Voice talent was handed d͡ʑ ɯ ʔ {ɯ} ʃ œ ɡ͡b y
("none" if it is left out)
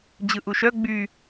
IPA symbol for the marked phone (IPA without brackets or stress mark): u